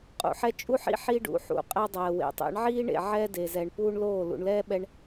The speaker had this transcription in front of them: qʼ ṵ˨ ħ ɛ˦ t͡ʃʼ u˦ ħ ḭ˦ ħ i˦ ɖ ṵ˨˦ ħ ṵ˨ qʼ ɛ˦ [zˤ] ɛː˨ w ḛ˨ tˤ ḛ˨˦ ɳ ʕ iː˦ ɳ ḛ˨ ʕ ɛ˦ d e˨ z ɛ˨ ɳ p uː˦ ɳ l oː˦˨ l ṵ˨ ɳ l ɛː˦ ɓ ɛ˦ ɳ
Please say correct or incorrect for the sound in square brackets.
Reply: incorrect